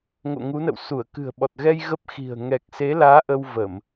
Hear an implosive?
yes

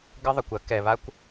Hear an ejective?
no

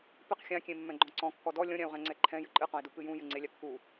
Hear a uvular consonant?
yes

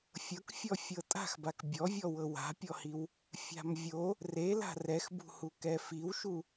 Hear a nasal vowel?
no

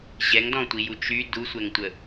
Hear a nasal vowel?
yes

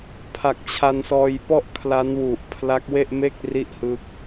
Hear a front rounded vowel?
no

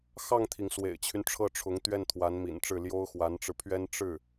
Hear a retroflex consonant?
yes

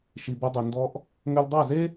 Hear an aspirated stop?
no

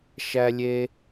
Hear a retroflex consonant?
no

